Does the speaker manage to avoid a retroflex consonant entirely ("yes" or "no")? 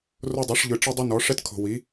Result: no